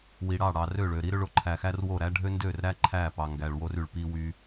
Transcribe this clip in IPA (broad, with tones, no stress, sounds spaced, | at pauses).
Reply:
w i˨ ɽ ɑ˦˨ ɽ ɑ˨ r ø˦˨ ɭ ø˨ ɾ i˦ ɾ ø˦ ɭ o˨ ǃʰ æ˨ x æ˦ r w o˦˨ ɾ æ˦ ɖʱ ø˦ n d ø˦˨ r ɾ æ˦ ǃʰ æ˦˨ p ɑ˨ ŋ ɡ æ˨ ɭ w o˦ r y˨ ɭ p i˦ w y˦